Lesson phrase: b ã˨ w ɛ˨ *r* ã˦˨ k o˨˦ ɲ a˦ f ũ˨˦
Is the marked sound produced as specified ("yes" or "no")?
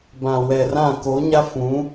yes